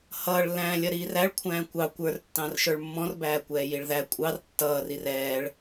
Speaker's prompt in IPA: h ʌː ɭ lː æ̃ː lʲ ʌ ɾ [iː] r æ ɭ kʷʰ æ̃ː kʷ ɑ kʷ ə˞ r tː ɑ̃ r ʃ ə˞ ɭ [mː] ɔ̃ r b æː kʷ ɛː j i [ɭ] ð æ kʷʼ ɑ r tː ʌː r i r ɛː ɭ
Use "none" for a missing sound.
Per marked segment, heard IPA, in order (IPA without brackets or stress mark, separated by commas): iː, mː, ɭ